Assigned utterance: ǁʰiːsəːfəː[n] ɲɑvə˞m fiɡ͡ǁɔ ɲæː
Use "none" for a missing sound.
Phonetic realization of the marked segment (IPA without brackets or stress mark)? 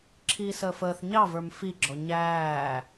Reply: θ